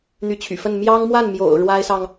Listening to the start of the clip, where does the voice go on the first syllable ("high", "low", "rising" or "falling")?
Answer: rising